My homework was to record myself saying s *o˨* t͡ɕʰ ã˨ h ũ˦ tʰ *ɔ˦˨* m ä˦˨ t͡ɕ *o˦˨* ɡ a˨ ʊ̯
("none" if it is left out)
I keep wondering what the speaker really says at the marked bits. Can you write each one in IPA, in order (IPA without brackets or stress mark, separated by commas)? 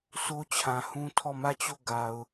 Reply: o˦, ɔ˦˨, o˦˨